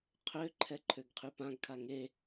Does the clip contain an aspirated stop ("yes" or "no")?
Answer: yes